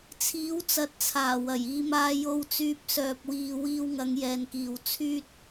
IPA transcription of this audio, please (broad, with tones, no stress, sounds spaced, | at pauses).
t͡sʰ iː˨˥ w t͡s ɐ˨ t̚ t͡sʰ aː˨˩ w ɐ˨˩ j iː˨ m aː˧ j o˧ w t͡s yː˧ p̚ s œː˨ p̚ w iː˨ w iː˧ w ŋ ɐ˨˧ ŋ j ɛː˨ n k iː˨ w t͡sʰ yː˥ t̚